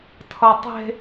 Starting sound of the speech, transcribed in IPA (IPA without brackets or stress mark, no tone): tʰ